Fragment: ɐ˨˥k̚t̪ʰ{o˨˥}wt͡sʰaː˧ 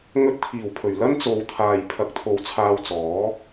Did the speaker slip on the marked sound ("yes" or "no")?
yes